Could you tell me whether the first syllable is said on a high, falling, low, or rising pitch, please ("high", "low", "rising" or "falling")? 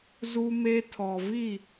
high